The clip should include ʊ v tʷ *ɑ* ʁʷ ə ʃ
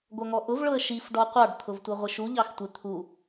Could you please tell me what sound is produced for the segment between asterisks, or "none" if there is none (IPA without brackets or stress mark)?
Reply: ʌ